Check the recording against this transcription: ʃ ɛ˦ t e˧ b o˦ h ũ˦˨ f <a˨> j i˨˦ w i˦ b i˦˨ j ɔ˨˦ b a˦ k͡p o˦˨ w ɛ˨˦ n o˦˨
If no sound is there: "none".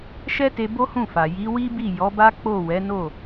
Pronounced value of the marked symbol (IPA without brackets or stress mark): a˨